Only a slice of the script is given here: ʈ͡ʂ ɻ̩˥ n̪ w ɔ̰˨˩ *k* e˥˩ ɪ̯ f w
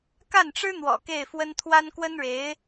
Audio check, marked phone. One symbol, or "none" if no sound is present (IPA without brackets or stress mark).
k